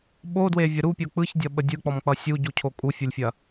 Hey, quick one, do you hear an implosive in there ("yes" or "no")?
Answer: yes